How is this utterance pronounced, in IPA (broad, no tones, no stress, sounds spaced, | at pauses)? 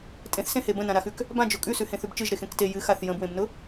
tʼ ẽ θ s ẽ h e b ə̃ n ã ɾ a x ʉ k | b ã d͡ʒ ʊ kʼ ʉ s ʉ h ẽ θ ʉ b t͡ʃ ɨ ʒ ɾ e x ẽ k t e j ɨ x a θ j ə̃ b w ẽ b n ʊ